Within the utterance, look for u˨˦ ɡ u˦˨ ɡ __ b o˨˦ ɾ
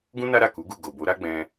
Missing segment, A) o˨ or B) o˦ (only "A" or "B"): A